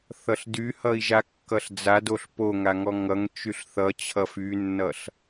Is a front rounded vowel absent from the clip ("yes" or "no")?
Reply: no